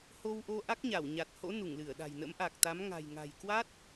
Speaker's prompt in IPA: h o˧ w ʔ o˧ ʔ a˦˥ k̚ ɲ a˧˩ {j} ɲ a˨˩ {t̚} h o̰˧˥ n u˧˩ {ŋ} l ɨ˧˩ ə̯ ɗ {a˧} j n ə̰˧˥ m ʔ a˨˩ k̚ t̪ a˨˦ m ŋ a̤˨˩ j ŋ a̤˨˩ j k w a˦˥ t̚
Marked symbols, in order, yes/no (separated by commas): no, yes, yes, no